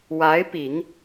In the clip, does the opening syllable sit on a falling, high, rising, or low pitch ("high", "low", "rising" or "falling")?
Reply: rising